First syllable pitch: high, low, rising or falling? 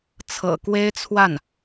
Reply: low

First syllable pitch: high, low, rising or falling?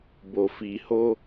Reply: low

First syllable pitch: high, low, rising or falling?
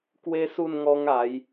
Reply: high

